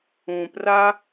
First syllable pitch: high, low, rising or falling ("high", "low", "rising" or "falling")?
low